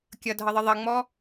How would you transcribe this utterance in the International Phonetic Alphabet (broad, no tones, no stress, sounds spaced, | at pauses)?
kʲ ʌ dʱ ʌ ðˤ ə ðˤ ʌ ŋ͡m ɔ